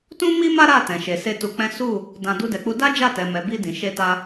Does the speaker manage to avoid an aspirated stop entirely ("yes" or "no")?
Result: yes